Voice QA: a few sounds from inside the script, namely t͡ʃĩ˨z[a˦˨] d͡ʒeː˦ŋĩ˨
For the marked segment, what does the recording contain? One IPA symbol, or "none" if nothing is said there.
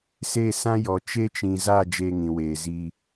a˦˨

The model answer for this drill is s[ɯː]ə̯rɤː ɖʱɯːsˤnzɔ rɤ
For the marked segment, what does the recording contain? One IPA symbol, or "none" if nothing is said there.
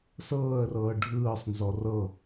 ɤː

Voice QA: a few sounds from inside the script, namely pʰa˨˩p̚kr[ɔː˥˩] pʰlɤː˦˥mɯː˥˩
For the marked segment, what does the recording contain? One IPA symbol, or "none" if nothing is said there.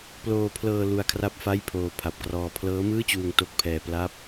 ɔː˧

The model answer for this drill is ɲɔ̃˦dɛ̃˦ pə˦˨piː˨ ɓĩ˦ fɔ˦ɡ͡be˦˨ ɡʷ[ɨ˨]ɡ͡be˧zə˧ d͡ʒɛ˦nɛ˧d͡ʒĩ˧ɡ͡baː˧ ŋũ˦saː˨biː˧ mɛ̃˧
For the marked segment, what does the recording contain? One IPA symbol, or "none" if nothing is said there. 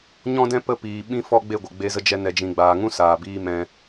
ə˨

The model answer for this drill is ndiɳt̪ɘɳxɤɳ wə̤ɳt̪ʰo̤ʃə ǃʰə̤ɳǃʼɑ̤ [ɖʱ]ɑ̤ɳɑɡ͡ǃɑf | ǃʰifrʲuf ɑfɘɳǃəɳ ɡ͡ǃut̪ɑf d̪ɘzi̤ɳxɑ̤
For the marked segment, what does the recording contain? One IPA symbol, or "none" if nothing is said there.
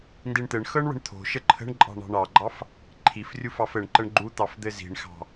ɳ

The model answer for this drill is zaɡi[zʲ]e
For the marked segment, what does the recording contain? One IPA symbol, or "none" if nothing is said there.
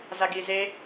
z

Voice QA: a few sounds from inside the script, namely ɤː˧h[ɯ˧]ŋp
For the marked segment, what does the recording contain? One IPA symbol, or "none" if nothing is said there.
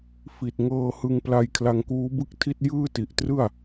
ɯ˧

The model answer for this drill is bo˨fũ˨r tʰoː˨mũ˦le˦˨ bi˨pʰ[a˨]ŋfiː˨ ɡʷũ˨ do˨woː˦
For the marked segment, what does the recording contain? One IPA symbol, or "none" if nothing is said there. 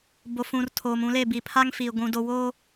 a˦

